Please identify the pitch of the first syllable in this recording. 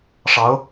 rising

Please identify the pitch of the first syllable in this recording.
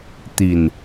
low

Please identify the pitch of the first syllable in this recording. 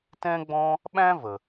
high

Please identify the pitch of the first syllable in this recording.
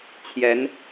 rising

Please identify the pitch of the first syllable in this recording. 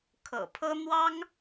low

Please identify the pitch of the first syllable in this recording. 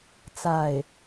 falling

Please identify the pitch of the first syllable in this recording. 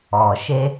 low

